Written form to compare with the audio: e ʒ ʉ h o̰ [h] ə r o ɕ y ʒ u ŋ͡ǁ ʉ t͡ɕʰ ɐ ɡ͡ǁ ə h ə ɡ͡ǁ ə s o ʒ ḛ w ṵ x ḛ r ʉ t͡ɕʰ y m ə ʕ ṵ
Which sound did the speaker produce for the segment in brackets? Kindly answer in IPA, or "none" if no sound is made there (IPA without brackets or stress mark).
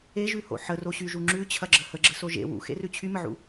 ħ